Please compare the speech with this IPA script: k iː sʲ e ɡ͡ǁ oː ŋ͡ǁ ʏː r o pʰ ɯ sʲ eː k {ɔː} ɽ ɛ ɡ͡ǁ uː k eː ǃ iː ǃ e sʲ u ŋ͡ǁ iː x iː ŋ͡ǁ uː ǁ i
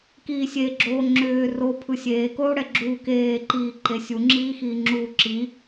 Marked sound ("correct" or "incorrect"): incorrect